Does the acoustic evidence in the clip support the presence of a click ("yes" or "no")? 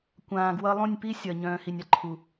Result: yes